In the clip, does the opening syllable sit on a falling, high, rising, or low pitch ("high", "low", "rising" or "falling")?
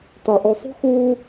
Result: low